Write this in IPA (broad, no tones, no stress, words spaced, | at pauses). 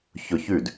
çʊ çʉd